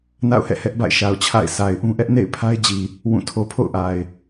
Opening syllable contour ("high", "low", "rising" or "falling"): falling